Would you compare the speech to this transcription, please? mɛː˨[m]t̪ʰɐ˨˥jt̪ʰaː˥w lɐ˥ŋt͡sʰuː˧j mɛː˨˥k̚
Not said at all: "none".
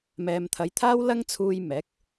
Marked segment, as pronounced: m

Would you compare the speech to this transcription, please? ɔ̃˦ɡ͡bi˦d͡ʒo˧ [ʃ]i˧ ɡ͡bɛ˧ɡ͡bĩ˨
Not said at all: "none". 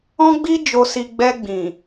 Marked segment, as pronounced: s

